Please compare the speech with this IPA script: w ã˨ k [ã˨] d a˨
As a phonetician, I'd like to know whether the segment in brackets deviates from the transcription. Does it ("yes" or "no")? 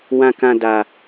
no